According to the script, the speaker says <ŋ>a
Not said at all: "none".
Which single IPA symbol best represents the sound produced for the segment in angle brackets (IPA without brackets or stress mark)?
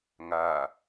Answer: ŋ